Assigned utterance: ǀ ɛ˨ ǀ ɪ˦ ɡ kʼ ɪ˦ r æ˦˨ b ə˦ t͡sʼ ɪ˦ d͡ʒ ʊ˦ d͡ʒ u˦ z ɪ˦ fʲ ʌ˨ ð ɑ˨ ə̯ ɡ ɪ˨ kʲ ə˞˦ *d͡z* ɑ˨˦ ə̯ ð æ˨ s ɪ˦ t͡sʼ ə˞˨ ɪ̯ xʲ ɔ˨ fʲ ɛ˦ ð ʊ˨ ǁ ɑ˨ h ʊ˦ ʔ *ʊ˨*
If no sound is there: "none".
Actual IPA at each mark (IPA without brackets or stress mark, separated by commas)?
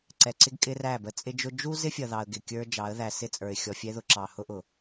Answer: d͡ʒ, ʊ˨